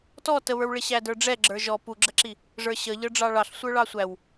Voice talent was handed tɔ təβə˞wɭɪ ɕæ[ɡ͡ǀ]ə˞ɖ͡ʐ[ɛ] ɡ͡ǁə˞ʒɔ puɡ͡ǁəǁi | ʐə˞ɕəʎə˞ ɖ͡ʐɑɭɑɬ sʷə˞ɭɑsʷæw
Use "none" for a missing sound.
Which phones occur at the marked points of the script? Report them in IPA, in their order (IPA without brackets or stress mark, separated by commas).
d, ɛ